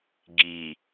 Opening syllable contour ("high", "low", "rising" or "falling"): low